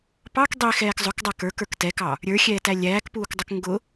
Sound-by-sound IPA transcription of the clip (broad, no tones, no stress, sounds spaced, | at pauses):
p ɑ k dˤ i x ɛː k zˤ ʊ k dˤ æ k ə˞ k ə˞ k t ɛ k ɑ | ɾʲ ə˞ xʲ ɛː t æ lʲ æː k p uː k dˤ ʊ k ŋ ɡ ʊ